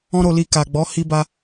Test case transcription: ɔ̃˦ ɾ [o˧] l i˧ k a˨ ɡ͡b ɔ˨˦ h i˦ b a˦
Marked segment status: correct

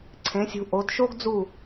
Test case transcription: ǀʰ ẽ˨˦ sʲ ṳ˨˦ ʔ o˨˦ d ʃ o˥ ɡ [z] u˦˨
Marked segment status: incorrect: d͡z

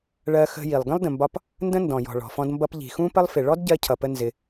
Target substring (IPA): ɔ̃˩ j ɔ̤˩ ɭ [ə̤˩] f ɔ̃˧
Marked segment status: incorrect: ɔ̤˩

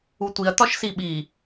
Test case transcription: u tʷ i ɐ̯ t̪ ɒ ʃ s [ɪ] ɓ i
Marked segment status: incorrect: i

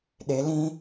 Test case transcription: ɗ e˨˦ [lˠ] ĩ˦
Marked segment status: incorrect: l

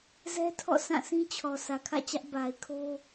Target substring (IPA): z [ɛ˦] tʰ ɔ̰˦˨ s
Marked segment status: correct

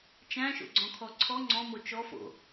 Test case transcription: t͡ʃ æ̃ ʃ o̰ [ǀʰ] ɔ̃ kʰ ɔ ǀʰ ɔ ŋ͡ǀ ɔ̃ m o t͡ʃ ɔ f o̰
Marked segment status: incorrect: ɡ͡ǀ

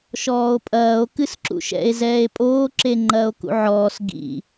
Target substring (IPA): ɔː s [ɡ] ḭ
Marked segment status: correct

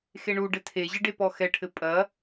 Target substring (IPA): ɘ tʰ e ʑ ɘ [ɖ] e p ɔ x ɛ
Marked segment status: correct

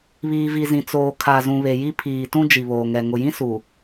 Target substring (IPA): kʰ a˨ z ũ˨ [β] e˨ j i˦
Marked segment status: correct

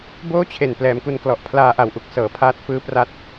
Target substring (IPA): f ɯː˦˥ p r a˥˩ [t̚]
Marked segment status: correct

